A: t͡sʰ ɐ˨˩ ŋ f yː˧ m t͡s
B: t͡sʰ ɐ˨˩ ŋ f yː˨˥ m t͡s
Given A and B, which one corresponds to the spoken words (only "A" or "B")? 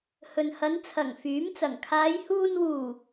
B